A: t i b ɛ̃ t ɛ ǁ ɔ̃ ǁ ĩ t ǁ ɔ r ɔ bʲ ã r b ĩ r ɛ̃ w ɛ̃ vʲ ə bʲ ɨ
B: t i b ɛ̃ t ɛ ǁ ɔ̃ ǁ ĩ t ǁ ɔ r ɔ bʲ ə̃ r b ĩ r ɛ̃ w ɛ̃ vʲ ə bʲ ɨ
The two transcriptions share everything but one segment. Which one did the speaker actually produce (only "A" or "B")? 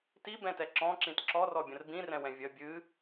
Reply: B